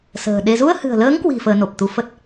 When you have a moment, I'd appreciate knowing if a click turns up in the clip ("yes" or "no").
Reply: no